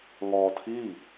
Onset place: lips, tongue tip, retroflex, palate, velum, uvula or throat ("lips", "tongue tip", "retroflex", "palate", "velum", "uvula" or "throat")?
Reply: velum